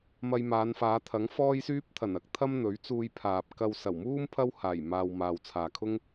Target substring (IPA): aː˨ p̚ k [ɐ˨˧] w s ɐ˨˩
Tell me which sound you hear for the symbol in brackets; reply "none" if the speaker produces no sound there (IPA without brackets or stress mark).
ɐ˧